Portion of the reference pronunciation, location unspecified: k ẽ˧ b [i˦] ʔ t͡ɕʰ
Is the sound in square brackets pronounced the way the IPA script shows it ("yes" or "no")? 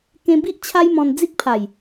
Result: yes